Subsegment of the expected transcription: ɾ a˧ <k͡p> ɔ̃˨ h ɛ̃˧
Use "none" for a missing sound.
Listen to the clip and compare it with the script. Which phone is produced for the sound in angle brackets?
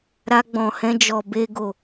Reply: ɡ͡b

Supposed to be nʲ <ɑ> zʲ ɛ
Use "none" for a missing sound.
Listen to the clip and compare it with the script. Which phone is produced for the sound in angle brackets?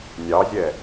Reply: ɑ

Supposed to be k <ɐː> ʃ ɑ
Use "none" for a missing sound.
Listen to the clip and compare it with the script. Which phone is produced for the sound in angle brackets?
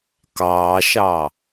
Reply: ɑː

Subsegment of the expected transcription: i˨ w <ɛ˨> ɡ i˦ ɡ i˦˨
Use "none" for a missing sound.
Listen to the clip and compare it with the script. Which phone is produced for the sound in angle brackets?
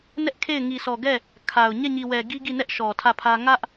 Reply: ɛ˨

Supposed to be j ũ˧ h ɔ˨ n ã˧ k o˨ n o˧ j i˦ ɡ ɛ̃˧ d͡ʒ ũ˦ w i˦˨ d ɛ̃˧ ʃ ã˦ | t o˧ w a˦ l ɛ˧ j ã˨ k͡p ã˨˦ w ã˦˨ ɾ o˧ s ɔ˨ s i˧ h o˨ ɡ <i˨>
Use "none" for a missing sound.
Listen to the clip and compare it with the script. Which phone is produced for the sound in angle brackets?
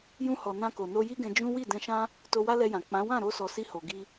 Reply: i˧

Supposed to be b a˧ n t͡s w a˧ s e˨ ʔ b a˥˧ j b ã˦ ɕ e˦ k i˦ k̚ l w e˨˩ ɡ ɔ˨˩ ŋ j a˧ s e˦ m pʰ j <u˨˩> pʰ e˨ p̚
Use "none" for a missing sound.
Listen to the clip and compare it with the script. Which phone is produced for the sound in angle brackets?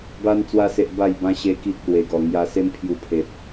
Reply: u˧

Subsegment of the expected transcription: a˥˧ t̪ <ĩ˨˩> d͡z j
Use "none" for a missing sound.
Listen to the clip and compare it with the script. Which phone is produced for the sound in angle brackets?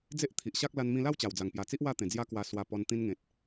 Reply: ẽ˨˩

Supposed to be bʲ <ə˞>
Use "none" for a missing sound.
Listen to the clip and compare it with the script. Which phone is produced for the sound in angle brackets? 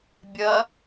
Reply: ɐ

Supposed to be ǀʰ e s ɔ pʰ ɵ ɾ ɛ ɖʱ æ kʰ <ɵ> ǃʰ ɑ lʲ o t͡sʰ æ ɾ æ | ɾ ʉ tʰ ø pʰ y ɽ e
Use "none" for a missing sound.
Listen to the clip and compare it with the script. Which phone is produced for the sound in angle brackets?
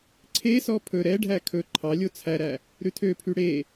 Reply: ɵ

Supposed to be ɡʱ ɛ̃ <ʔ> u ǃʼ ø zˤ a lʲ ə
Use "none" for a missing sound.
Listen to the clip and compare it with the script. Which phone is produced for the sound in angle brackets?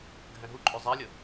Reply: ɦ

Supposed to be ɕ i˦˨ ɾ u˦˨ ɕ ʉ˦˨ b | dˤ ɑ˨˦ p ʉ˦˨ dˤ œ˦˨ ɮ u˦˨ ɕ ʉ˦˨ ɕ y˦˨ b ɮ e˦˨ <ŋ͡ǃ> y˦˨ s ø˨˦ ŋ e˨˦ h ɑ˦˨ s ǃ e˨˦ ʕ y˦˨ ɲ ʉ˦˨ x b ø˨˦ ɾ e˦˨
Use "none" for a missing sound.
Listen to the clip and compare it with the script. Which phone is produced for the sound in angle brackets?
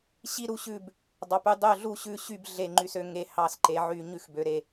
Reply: ŋ͡ǃ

